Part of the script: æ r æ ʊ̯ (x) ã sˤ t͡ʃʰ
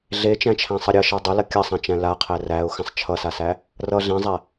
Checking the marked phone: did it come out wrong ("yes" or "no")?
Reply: no